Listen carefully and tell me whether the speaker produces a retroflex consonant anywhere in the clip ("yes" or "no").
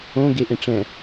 yes